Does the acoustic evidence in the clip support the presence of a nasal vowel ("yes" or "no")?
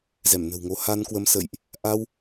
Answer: no